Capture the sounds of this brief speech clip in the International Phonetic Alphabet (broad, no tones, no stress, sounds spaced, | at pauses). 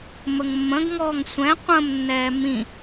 m ə ŋ mː ə̃ ɡ ŋ ɔː ŋ sʷ ɛ̃ qʷ ə̃ m nː ɛː m ĩ